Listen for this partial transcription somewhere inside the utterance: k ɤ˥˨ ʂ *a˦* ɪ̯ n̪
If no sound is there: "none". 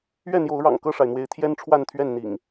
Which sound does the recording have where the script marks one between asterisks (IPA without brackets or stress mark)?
a˩